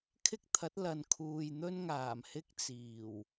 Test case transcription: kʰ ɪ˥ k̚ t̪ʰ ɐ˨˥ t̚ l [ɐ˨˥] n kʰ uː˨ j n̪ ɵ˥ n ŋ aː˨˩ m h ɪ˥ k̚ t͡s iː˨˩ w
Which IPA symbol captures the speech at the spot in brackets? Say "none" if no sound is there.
ɐ˨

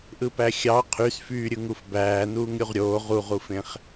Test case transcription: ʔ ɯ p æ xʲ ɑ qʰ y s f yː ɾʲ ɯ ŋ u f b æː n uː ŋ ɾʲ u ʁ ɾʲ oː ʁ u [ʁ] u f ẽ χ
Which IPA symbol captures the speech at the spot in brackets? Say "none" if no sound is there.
ʁ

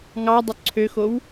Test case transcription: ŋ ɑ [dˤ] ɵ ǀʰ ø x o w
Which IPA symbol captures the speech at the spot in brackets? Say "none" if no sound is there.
dˤ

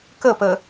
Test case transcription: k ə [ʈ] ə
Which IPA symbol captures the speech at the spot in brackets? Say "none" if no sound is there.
p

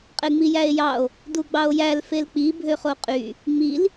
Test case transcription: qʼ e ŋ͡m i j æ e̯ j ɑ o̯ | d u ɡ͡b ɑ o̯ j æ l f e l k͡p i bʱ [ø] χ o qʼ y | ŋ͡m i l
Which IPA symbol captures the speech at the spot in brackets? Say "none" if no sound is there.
ø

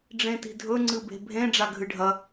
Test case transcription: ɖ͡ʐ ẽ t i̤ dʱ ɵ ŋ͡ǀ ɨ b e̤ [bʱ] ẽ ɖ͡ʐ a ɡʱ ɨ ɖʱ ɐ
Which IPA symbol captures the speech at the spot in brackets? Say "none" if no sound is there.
bʱ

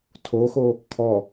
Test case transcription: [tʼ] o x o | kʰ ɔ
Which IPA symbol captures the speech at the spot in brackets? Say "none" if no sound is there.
tʰ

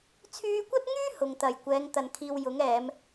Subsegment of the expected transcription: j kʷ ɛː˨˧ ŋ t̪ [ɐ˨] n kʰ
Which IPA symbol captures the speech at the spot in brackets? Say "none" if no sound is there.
ɐ˨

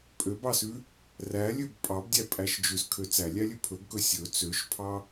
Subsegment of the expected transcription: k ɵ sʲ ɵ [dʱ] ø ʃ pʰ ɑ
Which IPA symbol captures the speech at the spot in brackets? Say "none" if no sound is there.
t͡s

